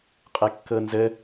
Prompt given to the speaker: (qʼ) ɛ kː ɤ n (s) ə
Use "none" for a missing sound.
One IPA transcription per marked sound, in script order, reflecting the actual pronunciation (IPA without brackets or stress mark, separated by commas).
qʼ, z